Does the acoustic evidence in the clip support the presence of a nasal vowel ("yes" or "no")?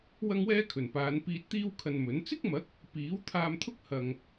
no